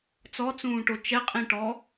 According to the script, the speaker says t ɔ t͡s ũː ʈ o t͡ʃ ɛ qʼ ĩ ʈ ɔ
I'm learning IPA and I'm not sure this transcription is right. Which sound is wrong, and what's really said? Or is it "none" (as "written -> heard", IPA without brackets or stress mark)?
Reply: t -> t͡s